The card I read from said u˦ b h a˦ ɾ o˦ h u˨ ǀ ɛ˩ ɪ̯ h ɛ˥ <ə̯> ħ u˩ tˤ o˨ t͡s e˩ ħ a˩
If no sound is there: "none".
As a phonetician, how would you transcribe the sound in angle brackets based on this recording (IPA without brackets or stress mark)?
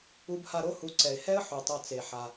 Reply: ə̯